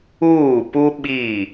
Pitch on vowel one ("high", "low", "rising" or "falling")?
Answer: falling